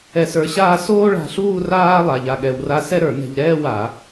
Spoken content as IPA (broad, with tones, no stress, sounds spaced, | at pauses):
ɛ˧ s ə˞˧ ɕ aː˥˧ s oː˥ ɭ a̤˧ ɬ uː˥˧ r aː˥ lˠ a˧ ʎ a˧ ɠ ɛ˧ w r a˥˧ s ɛ˥ ɾ ə˞˧˩˧ n ɛ̤˧ ʎ ɾ ɛː˥˧ w a˧˩˧